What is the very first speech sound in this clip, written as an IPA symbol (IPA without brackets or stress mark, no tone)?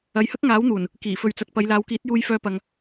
ɐ